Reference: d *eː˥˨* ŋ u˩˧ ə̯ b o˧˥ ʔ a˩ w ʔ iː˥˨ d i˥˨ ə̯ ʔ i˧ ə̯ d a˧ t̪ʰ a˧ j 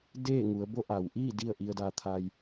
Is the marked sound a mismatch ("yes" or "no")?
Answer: no